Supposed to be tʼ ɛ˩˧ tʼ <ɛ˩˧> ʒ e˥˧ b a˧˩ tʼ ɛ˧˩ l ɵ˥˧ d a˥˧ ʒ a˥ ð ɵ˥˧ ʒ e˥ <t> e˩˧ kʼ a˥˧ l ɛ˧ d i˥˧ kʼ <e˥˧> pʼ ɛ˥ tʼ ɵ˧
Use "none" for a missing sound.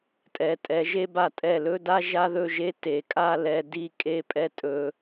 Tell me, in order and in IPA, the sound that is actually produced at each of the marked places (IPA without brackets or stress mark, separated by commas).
ɛ˩˧, t, e˥˧